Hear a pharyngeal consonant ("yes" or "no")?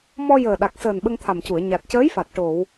no